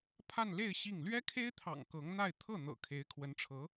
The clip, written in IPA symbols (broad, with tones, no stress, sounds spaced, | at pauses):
pʰ a˥˧ n l e˥˧ ɪ̯ ɕ i˥˩ ŋ l ɥ ɛ˥ kʰ e˥ ɪ̯ t̪ʰ ɑ̰˨˩ ŋ k ɤ˧˥ ŋ n̪ a˥˧ ɪ̯ t̪ʰ ɤ˥˩ n̪ ɤ̰˨˩ kʰ e˧˥ ɪ̯ kʰ w ə˧˥ n ʈ͡ʂʰ ɤ˧˥